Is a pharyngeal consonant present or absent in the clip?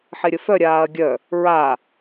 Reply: present